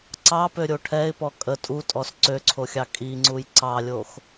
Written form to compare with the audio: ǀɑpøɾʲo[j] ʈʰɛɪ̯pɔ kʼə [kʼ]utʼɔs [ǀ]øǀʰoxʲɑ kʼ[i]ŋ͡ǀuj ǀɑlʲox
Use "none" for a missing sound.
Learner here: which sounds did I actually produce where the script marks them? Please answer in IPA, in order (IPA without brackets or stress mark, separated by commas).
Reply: none, tʼ, ǀ, i